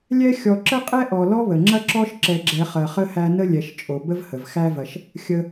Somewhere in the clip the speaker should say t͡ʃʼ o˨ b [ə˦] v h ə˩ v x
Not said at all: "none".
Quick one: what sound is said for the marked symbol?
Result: ə˦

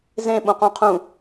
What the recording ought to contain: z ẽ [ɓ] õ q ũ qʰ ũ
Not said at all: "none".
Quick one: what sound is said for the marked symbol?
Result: ɓ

